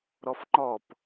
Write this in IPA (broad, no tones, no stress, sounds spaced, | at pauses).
ɾ ɔ f ŋ͡ǃ ɔ p